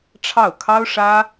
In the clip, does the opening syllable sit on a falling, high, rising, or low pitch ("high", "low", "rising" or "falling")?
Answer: falling